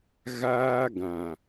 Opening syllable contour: high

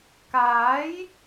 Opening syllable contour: rising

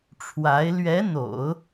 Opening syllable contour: rising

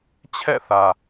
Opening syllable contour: falling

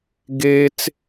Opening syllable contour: high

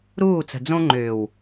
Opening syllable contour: falling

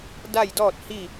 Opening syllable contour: falling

